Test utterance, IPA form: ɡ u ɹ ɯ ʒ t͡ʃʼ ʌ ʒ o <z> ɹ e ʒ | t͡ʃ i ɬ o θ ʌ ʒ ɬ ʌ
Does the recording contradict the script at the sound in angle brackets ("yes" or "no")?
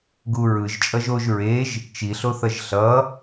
yes